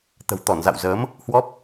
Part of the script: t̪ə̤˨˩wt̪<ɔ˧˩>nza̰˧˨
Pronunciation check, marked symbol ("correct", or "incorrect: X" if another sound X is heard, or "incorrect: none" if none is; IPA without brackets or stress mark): correct